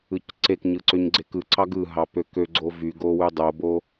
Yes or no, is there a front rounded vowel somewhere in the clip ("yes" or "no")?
yes